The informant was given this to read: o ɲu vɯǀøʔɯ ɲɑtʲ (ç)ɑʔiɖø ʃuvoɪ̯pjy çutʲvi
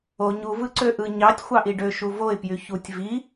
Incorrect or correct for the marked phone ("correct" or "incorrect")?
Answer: incorrect